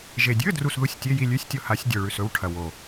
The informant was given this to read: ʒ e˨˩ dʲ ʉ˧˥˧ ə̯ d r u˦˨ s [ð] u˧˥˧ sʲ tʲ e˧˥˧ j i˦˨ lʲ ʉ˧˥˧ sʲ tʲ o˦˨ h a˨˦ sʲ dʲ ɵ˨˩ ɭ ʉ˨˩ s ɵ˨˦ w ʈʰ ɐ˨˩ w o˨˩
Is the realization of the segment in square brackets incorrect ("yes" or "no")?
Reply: no